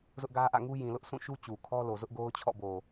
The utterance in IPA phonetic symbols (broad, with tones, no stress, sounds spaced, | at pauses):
z ʊ˦ ʔ ɡ ä˦ ʔ ä̰˦˨ ŋ u˦ j ĩ˨ l ʊ˦ ʔ s ũ˦˨ ʃ u˦ t͡ɕ u˨ kʰ ɔ˦ l o˨ z ʊ˦ ʔ ɡ o˦ ʊ̯ t͡ɕʰ ɔ̰˦˨ b o˨